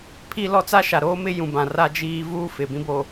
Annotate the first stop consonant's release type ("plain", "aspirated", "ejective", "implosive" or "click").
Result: aspirated